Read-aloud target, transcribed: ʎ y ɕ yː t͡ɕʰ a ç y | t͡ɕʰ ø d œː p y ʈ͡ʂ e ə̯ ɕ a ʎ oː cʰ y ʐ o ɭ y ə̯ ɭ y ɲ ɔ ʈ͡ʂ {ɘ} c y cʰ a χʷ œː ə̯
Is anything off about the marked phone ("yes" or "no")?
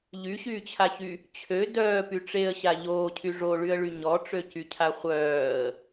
yes